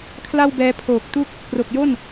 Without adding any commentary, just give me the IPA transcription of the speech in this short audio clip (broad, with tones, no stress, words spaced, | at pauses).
kʰla˥˩wbɛː˦˥ pʰoː˨˩k̚tu˦˥k̚ | kro˨˩k̚jo˥˩n